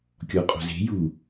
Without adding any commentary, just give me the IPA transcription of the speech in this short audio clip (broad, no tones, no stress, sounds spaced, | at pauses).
kʲ ɔ qʼ o̤ z e̤ j u